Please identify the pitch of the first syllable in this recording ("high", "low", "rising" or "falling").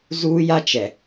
high